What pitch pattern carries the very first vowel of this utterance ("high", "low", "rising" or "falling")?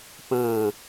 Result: falling